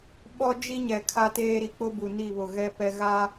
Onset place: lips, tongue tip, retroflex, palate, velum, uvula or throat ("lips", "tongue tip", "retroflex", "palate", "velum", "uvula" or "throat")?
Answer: lips